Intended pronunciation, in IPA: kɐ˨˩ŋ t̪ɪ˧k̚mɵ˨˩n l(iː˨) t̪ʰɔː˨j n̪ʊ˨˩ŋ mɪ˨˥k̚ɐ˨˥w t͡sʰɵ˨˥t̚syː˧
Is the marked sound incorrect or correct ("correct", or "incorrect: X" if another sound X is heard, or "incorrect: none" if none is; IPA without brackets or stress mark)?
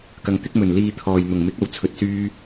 correct